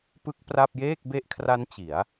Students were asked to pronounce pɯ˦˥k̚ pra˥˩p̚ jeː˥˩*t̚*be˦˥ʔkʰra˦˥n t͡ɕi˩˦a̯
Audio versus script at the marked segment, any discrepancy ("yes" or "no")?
yes